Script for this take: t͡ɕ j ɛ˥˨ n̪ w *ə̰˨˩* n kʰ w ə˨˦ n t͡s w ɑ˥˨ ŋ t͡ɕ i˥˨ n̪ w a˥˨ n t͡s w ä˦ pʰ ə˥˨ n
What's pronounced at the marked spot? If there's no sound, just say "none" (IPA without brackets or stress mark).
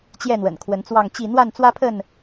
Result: ə̰˨˩